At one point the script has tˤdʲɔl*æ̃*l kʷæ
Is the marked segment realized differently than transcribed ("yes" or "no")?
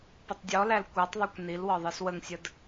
yes